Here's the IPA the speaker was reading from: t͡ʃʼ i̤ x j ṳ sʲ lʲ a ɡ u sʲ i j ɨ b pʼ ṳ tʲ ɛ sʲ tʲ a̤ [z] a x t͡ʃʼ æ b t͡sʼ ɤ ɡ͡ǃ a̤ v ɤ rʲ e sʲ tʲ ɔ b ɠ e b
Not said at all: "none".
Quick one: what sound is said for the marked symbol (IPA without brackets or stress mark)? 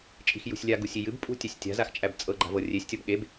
z